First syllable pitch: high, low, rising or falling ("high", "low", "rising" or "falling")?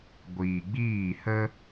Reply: low